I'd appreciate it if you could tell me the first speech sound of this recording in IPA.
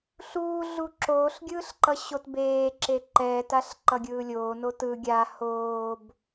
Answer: ɬ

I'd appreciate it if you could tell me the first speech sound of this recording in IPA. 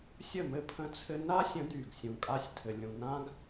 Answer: sʲ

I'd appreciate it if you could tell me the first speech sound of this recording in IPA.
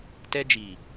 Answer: t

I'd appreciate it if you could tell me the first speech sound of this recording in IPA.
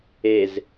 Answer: e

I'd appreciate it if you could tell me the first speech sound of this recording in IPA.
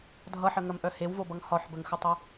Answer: dʱ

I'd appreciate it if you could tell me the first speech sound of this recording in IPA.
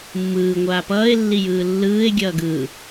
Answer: mː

